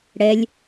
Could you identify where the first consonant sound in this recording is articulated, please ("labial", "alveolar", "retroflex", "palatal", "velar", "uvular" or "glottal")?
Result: retroflex